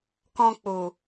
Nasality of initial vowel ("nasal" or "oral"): nasal